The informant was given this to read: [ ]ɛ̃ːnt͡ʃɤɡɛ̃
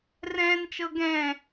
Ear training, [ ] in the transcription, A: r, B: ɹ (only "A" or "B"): A